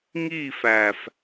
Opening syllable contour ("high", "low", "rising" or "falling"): falling